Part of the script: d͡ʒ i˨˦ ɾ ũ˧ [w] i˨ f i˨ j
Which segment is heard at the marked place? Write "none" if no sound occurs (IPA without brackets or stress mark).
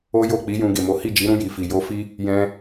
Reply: j